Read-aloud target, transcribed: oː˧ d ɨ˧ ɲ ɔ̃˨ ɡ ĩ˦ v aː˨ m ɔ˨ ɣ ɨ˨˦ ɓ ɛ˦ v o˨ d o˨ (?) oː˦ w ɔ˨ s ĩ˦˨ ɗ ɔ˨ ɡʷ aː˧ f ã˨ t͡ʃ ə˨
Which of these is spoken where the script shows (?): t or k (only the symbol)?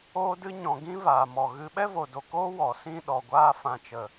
k